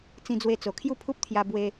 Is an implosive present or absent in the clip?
absent